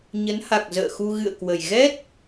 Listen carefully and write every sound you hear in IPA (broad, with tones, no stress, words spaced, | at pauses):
ɲə˨˦nha˨˩k̚zə̰ː˧˨xu˧ ɣɨ̰˧˨ə̯kwə˨˩j ɣɛ˦˥t̚